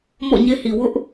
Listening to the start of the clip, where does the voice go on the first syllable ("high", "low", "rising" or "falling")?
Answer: falling